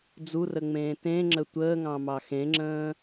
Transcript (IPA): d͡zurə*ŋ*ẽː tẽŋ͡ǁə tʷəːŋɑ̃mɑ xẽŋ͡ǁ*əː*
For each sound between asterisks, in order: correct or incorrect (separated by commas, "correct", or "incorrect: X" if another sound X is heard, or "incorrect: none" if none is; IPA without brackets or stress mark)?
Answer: incorrect: ŋ͡m, incorrect: ə̃ː